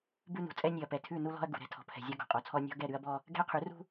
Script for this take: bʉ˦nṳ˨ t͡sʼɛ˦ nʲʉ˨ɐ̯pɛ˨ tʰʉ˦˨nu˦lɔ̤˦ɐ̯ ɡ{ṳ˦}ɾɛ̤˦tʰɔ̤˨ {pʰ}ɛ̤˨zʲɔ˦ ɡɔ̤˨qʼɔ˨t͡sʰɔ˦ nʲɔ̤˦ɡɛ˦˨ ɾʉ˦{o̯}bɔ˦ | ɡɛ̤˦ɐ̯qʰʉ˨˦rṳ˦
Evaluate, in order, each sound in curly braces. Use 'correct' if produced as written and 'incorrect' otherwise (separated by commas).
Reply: incorrect, correct, incorrect